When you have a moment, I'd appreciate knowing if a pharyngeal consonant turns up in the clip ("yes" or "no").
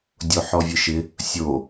yes